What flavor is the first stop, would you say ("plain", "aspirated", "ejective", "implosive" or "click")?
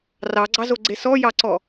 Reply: click